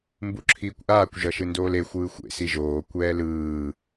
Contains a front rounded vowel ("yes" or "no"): no